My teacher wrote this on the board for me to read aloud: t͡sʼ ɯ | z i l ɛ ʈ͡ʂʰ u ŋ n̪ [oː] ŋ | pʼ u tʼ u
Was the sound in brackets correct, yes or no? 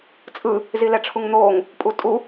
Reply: yes